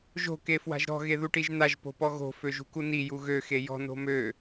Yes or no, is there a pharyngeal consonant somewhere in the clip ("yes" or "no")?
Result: no